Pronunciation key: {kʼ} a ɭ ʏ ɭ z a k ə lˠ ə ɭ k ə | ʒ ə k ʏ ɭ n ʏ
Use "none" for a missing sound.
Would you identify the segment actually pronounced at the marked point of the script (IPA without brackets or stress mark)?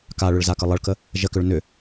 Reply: k